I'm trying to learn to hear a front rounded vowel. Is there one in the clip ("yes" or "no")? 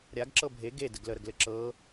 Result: no